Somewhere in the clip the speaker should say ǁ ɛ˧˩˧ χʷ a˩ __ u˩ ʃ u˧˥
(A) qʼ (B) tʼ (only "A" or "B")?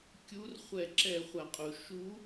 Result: A